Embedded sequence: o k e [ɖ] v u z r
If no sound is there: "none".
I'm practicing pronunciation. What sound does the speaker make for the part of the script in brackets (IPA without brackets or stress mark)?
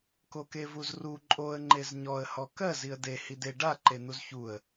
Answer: none